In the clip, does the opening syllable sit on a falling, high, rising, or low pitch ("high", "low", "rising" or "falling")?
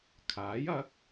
rising